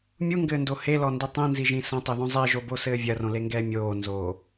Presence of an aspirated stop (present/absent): absent